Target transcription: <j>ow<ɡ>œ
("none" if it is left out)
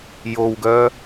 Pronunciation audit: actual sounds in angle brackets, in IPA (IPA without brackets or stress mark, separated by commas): j, ɡ